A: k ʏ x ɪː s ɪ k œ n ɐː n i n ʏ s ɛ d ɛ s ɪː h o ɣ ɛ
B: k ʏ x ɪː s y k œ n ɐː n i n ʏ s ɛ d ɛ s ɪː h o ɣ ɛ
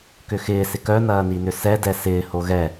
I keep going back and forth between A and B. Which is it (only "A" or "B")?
A